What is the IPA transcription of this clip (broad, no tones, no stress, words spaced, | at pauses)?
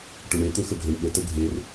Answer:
ʈɵɳe t̪ɵxəɡʱɵɳ ɓətə ɡʱer